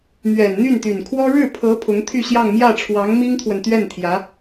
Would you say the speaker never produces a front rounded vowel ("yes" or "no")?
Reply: no